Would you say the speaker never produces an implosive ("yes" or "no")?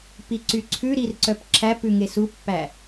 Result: yes